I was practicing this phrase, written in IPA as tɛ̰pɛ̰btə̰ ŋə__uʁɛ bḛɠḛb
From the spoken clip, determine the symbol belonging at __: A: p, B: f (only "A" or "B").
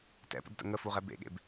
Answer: B